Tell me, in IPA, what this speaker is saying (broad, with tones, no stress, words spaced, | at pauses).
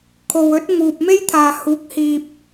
kʰo˨wɵ˨˥t̚ ŋuː˨p̚me˥jt̪ʰaː˨ huː˨˥k̚hiː˨p̚